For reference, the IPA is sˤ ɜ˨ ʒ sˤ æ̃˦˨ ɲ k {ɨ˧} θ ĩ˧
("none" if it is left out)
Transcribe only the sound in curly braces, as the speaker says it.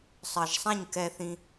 ɛ˧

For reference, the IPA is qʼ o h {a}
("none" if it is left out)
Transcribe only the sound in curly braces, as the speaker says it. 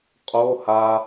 a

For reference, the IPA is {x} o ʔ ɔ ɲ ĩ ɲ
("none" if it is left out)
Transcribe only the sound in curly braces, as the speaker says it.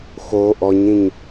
x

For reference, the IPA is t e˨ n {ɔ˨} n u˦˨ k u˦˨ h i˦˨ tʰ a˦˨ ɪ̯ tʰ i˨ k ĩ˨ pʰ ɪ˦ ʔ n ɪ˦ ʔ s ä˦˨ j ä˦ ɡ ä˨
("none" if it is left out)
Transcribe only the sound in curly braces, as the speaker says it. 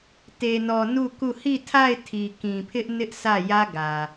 ɔ˨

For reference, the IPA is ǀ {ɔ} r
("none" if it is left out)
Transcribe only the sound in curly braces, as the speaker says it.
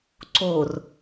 o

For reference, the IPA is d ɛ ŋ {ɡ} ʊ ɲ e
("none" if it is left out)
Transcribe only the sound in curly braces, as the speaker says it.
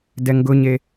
ɡ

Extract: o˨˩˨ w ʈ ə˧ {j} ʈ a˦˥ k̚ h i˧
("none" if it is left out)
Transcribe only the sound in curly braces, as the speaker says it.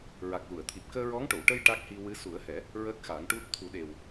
j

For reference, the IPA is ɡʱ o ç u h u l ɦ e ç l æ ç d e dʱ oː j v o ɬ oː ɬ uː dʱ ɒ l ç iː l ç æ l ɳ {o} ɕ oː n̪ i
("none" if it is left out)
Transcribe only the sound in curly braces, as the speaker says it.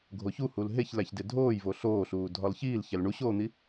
u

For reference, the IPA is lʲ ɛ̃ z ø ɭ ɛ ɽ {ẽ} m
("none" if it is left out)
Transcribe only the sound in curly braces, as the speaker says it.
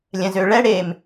e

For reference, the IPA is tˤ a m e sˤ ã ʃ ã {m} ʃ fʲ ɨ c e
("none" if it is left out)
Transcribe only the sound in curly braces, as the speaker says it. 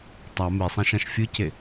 none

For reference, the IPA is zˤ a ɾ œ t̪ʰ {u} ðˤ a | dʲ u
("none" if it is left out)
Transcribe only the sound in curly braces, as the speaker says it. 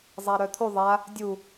u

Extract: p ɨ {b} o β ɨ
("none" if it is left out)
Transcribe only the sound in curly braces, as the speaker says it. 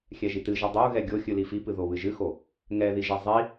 ð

